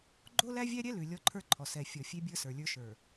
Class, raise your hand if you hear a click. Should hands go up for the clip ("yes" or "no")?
yes